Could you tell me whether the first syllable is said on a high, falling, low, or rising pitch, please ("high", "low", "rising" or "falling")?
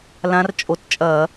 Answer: rising